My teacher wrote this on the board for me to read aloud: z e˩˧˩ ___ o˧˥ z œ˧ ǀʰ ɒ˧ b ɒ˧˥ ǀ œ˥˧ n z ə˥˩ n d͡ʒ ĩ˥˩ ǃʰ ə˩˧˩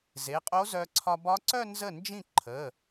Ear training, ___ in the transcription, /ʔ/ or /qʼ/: qʼ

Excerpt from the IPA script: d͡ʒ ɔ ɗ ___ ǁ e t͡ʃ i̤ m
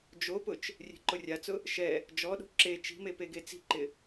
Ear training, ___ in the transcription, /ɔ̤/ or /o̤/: o̤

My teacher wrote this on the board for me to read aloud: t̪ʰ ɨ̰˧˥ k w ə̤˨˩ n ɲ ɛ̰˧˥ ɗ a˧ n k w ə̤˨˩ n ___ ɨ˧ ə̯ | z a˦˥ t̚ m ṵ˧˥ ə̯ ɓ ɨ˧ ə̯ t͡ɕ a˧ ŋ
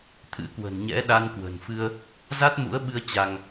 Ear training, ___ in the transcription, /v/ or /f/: f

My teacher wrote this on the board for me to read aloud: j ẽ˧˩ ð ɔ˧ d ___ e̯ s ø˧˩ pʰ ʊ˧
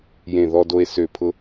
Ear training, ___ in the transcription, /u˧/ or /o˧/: o˧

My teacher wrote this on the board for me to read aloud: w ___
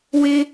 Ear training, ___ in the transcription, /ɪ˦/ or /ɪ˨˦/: ɪ˦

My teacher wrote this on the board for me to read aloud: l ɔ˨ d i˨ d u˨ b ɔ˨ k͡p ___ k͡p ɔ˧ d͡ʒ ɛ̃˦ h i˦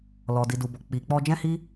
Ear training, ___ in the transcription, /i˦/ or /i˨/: i˨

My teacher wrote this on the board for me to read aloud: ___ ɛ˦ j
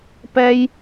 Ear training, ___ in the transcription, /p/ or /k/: p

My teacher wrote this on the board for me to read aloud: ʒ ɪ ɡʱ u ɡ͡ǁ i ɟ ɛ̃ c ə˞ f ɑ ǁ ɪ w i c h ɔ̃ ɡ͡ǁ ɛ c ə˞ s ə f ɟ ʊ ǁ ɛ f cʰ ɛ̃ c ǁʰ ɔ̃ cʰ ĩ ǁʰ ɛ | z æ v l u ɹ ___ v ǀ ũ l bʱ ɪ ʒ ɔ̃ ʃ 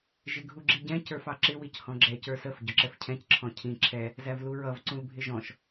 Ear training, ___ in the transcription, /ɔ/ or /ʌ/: ʌ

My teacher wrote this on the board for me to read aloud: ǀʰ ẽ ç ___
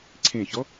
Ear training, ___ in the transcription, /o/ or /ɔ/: ɔ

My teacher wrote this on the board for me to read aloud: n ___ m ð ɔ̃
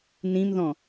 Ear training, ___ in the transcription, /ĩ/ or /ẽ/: ĩ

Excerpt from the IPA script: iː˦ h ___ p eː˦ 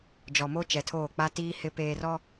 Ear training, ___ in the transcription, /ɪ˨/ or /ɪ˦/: ɪ˦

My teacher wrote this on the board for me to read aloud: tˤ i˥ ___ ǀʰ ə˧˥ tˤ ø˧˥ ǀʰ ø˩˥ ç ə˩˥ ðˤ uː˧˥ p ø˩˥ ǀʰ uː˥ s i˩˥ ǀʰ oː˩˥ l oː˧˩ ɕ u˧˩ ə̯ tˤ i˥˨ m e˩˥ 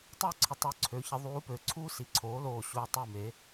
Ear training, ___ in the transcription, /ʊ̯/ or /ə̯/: ʊ̯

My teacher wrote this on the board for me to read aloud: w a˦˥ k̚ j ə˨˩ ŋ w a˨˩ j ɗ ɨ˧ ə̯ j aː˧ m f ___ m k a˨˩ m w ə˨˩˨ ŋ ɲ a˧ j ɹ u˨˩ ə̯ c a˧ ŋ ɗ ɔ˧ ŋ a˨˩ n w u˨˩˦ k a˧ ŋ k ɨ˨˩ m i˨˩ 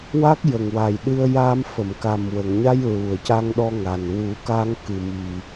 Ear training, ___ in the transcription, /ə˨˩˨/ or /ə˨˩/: ə˨˩˨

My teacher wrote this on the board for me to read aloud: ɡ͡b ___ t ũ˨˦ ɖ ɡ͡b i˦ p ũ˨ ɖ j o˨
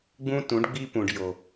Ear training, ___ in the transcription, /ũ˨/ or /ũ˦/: ũ˦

